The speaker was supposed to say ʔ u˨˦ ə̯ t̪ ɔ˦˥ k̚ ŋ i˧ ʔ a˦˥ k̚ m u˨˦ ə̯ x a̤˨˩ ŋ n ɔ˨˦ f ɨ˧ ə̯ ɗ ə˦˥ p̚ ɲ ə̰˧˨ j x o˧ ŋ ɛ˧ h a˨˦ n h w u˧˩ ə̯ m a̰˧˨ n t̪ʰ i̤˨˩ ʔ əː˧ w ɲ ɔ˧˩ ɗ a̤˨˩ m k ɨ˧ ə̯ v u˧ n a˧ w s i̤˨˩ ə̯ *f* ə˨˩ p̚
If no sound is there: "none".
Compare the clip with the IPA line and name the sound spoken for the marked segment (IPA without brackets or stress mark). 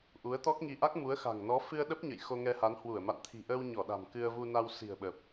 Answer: ɓ